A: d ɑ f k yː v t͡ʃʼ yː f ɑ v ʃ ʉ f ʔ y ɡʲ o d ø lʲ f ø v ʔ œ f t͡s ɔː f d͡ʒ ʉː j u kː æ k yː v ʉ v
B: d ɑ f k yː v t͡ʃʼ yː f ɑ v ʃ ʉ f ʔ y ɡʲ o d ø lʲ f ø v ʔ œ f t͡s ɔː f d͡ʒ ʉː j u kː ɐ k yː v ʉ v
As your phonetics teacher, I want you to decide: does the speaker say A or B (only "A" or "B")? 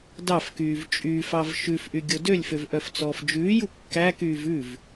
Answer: A